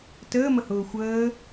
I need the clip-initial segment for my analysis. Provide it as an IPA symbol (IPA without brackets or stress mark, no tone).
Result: t